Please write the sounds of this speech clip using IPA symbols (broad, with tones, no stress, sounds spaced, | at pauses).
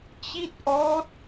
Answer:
t͡ɕ i˥˩ t̚ ʔ ɔː˦˥ t̚